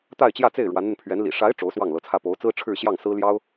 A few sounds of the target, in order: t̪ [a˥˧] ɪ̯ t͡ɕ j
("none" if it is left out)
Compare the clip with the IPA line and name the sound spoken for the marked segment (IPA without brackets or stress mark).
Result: a˥˧